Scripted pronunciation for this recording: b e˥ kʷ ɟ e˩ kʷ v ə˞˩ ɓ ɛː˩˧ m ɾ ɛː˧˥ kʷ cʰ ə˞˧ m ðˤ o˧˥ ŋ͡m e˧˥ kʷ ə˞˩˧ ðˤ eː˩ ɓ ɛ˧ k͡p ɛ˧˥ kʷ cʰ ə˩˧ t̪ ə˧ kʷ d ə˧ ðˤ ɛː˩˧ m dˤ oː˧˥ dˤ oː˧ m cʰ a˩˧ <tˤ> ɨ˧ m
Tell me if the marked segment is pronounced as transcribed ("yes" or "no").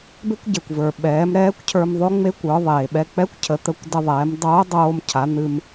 no